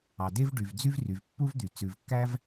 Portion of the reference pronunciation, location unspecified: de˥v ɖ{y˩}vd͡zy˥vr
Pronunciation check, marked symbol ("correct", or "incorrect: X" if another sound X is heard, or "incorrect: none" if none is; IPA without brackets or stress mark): correct